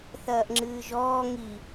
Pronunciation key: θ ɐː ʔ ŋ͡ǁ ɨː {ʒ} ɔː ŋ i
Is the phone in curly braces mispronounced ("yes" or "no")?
no